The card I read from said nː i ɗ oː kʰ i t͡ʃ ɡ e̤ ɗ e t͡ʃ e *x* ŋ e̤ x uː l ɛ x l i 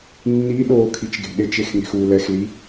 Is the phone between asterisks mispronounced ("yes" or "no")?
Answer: no